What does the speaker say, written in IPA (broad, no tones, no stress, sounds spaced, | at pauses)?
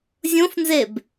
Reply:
zʲ õ f n z e b